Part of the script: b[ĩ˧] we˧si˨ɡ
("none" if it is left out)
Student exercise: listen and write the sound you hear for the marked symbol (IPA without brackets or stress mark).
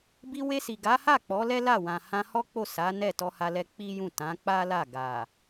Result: i˧